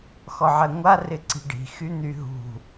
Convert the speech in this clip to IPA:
xɔʕɛŋʷa rɪǀi̤ɖi̤ xyn̪yɦṳ

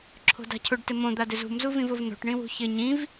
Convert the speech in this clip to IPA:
ǁʰo̤da̤cʰʊɖ tɪmõ d̪adɪzṳm zuvĩvʊvno̤ʈ ɳĩwṳçɪ ɲĩv

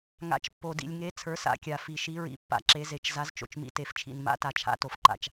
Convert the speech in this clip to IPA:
ŋa̰˨˦t͡ʃpːo˨ dḭ˨lʲŋe˨˦ t͡sʰə˞˨˦sa̰˨˦kʲa˨ fi˨ʃi˨˦ɹḭ˨˦ pːa̰˨˦ǁe˨˦ze˨˦t͡ʃ za˨˦zt͡ʃo̰˨t͡ʃmḭ˨˦ te˨ft͡ʃʰḭ˨n ma̰˨˦ta˨t͡ʃʰa̰˨˦ to˨fǃa̰˨t͡ʃ

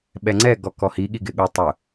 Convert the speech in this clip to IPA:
ɓɛŋ͡ǀɛ ɡɔkɔhi ɠiɡɪɠu tˤʊ

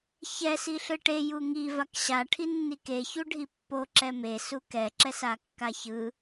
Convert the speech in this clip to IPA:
çɛ siɬɯʈe juŋi vakɕa ʈʰinːike çuɖʱipːo ǁɛme sukɛ ǁɛsakːaçɯ

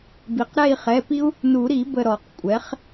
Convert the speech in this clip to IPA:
bi˩qɾɛ˦˨i̯χɛ˩˧˩pi˦u̯ | nu˨˩˦ɾi˨˩˦ bə˦˨ɾɔ˨˩˦qkʷʼɛ˩˥χ

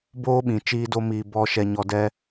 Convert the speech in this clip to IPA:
boː˦ɓĩ˨ t͡ʃiː˦do˦miː˧ bɔ˦ ʃɛ˧ɲɔ˧ dɛ˦

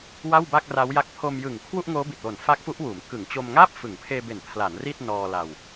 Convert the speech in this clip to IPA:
wa˥˩wba˥˩k̚ra˦˥wja˦˥k̚ pʰo˧m jɯ˨˩ŋ kʰwu˥˩ʔŋoː˦˥bi˨˩t̚wo˨˩n fa˦˥k̚fu˦˥ʔwuː˩˦m kɯ˩˦ŋt͡ɕo˧mŋaː˥˩p̚ fɯ˩˦ŋpʰeː˧be˨˩n pʰla˩˦n ri˥˩t̚nɔː˧ la˧w

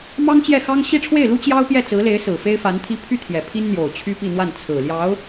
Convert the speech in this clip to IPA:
mɑ˥ŋt͡ɕjɛ˥˩xɑ˥ŋ ɕi˥˧ʈ͡ʂʰwe˥˩ɪ̯lu˥ t͡ɕjɑ˥ʊ̯pjɛ˥˩t͡sɹ̩˧˥le˧˥ɪ̯ sɹ̩˨˩fe˥ɪ̯fa˧˥nt̪ʰi˥ pʰy˥ t̪ʰjɛ˨˩ pʰi˥nn̪jo˨˩ʊ̯ t͡ɕʰy˥pi˥˧n̪wa˥˩n t͡sʰɹ̩˨˩ljɑ˧˥ʊ̯

